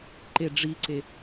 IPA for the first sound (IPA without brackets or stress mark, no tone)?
ǃ